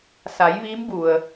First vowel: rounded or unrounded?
unrounded